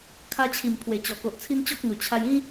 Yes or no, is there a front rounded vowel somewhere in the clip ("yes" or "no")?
no